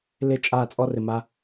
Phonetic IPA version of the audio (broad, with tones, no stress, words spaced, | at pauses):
lɪ˦ t͡ʃʼaː˦˨t͡sʼɔ˦rɪ˨ma˧